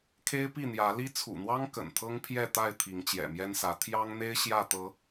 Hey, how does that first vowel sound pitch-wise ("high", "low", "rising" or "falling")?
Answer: high